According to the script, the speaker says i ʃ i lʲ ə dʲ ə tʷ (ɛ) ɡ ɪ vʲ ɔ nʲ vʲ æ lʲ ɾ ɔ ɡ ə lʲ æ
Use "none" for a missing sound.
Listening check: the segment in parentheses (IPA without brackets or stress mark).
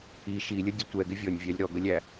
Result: ɛ